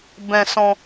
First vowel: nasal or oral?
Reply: nasal